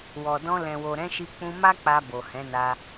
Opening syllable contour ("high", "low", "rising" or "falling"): low